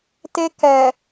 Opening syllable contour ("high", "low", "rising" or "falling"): high